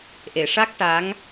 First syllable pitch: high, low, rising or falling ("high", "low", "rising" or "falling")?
low